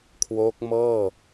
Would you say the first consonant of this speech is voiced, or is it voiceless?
voiceless